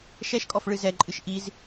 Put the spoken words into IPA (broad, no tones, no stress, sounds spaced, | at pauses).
ʃ ɛ ʃ kʼ ɔ f ɭ ɨ z ɛ ǃʼ ɨ ʃ ʔ i z